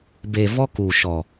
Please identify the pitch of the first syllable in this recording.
low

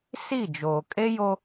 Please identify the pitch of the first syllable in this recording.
falling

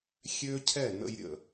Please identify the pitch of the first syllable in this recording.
high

